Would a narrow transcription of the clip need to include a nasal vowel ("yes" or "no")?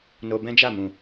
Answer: yes